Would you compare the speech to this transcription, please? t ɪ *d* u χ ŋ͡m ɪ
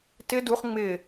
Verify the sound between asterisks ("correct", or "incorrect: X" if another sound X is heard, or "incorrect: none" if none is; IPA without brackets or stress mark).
correct